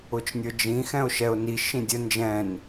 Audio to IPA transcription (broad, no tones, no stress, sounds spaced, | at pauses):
ʊ t͡ʃ nʲ ə˞ d͡ʒ ĩ x ɛ̃ ʊ̯ ʃ ɛ ʊ̯ n i ʃ ĩ dʲ ə n d͡ʒ ɛ̃ n